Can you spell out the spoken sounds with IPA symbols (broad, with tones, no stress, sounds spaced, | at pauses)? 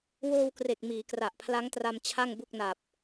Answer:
w oː˧ w k r e˨˩ k̚ m iː˩˦ k r a˨˩ ʔ pʰ l a˦˥ ŋ t r a˧ m t͡ɕʰ a˥˩ ŋ b u˥˩ k̚ n a˨˩ p̚